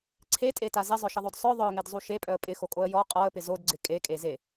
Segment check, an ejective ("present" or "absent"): present